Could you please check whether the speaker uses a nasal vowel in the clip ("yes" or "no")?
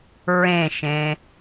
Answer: yes